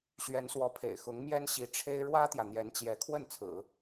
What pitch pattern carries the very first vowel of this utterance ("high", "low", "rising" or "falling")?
rising